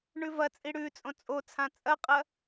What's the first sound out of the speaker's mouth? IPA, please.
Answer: ɳ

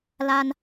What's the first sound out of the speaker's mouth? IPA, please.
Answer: l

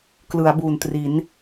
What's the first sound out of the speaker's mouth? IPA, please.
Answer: k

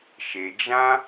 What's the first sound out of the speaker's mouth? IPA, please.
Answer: ʃ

